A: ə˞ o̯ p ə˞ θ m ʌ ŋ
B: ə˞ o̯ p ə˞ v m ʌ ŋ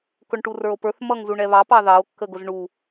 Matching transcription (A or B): A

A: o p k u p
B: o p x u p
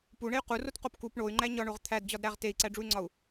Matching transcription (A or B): A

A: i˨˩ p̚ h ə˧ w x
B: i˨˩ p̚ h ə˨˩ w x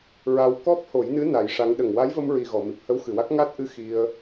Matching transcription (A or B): A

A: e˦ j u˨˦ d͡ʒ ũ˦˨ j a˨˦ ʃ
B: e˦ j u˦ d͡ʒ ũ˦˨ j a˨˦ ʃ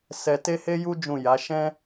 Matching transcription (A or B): B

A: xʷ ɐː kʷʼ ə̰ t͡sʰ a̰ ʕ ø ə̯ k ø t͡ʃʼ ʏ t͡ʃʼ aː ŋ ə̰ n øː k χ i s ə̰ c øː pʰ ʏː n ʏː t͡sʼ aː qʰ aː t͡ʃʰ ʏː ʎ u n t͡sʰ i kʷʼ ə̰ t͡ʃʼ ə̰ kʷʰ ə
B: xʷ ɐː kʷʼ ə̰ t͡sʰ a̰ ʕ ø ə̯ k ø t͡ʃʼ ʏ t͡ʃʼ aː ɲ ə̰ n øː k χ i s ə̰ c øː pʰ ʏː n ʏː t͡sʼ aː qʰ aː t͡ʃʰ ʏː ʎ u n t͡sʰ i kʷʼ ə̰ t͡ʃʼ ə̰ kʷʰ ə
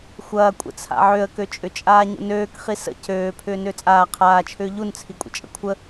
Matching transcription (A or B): B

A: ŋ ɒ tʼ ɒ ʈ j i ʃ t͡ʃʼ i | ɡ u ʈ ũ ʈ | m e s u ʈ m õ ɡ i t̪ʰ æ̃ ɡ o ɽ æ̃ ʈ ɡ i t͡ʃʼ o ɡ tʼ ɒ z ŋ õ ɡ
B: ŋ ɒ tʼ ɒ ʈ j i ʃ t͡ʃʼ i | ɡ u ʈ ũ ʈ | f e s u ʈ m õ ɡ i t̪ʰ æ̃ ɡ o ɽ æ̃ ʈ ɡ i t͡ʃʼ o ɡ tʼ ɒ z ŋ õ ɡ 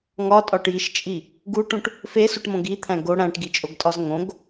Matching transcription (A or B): B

